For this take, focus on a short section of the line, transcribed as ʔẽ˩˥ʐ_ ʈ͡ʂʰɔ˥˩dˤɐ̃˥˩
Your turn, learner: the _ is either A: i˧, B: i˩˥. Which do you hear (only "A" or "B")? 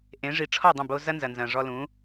B